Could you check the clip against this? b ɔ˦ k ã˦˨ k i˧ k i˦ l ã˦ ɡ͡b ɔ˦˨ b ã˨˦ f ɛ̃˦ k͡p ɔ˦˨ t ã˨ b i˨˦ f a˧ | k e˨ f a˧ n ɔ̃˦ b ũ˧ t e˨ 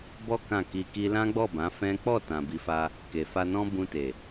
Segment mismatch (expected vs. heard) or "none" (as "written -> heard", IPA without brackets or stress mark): none